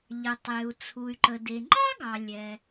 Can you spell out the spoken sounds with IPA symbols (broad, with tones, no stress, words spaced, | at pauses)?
ʎə˩tˤe˩u̯t͡sʰu˩y̯ǃə˩ de˩ŋ͡ǃɑ˥ɡɑ˩ lʲɛ˩